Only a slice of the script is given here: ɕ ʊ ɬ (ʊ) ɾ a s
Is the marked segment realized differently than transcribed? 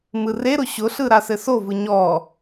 yes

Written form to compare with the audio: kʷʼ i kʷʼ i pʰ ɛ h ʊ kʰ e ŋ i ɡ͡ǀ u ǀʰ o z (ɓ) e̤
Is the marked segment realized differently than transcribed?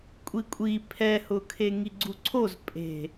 yes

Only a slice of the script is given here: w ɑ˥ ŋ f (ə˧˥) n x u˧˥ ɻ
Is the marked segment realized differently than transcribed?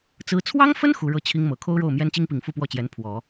yes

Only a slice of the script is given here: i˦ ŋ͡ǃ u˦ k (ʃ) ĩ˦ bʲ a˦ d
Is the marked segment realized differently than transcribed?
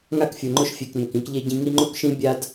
no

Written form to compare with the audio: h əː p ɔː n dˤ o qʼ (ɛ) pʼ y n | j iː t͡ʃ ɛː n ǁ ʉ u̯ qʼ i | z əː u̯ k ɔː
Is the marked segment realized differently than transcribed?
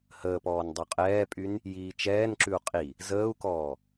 yes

